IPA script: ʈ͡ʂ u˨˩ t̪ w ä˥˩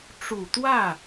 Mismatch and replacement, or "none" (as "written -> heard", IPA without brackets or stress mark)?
none